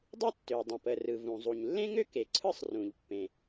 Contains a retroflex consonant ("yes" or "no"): no